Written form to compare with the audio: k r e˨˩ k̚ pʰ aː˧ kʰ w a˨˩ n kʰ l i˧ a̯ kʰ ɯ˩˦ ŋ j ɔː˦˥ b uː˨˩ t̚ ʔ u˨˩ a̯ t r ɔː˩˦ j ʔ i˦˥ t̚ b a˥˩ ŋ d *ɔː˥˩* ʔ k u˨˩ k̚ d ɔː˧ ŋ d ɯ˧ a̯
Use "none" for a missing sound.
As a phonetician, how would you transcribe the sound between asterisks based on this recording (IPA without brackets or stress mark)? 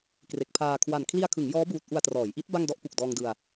ɔ˥˩